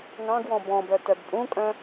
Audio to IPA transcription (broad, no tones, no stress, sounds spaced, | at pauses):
ŋ ɑ̃ ɡ w ɔ̃ b ɔ̃ b œ t œ b pʼ ũ kʼ œ̃